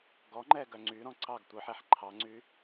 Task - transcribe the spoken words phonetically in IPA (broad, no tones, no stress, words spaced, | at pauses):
ɡɔŋ͡ǃɛ ɡœŋ͡ǀyɾɔ̃ ǀɑɡ tʷœħɛħ ǃʰɑŋ͡ǀy